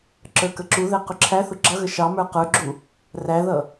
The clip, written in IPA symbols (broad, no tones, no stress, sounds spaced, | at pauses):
ǁ ə˞ k ə ǁ u ð ɛ q ʊ ǁʰ æ θ ʊ ɡ͡ǁ ʌ ɣ ə ʃ ɑ m ə˞ q ə˞ ɡ͡ǁ u | r æ ð ʌ